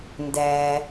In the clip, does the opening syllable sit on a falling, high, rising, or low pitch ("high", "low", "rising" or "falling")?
low